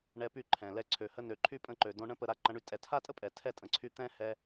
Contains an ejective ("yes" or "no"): yes